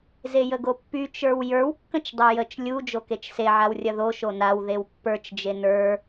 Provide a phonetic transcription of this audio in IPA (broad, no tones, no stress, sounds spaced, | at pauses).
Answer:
z e j ə ɡ o pː y t͡ʃ ə˞ w j ə˞ w kː ə̃ t͡ʃ dˤ o j ə t͡ʃ lʲ u d͡ʒ o k e t͡ʃ s e ʕ a w rʲ ɐ ð o ʃ o n a w ð e w pː ə˞ t͡ʃ d͡ʒ e n ə˞